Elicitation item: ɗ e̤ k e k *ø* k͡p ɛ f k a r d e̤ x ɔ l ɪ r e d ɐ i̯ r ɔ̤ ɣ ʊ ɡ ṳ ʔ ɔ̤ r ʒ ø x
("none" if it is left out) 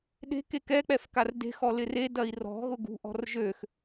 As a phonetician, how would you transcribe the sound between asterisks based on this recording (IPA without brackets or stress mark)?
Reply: ɛ